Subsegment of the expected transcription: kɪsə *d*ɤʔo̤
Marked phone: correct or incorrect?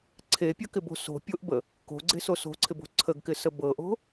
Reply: incorrect